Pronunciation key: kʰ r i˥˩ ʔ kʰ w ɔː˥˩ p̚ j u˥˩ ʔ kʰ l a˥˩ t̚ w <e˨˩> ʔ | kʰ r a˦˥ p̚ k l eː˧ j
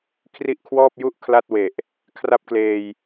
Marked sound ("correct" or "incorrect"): correct